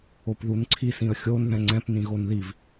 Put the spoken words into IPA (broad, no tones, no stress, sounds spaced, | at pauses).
o p ð u n ǀʰ i s ĩ ə̯ xʲ o n ð ɛ̃ ŋ͡ǀ ɛ̃ p n ĩ ɣ o n ð i v